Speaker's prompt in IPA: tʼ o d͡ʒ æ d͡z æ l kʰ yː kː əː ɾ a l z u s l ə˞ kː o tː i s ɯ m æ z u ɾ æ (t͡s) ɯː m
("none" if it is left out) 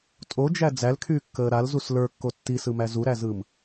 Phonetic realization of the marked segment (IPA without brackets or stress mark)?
z